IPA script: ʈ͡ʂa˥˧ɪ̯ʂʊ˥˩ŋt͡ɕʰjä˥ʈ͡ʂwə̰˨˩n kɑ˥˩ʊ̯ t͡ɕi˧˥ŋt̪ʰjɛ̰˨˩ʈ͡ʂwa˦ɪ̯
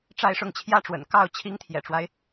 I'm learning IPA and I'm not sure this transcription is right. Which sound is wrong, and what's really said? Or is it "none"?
t͡ɕ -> t͡ɕʰ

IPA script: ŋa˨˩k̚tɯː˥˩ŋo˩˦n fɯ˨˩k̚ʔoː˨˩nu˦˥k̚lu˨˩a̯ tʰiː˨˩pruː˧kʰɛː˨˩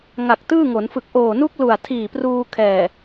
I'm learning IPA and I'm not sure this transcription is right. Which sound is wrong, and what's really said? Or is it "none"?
none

